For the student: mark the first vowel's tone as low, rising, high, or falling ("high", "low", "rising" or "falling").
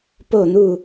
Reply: falling